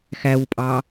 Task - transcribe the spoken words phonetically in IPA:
x æ w pʼ ɑ

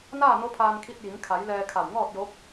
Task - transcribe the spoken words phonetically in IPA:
n aː˥˨ n o˧˥ pʰ aː˧ n kʰ i˧ t̚ j i˩˧ ŋ kʰ a˩˧ j l ɛː˧ kʰ a˧˩ w ŋ ɔː˥˨ t̚ j o˧˥ p̚

